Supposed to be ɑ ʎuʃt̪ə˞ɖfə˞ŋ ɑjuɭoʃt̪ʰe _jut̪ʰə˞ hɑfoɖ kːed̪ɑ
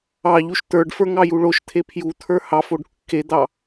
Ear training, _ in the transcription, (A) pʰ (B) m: A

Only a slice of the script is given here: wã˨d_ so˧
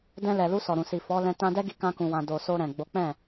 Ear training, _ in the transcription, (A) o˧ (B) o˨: B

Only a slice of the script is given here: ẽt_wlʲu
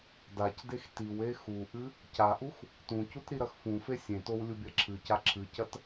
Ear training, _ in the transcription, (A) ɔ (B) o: B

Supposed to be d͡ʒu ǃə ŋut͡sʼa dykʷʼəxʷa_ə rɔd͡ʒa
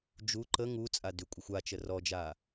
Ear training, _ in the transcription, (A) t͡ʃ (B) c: A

